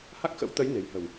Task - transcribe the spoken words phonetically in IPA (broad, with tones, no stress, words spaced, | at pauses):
ha˦˥k̚xə̰˧˥w t̪ə˨˦j ne̤˨˩jhə̤˨˩w